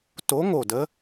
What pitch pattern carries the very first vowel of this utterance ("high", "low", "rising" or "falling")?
rising